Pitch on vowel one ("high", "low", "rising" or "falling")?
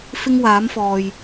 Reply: high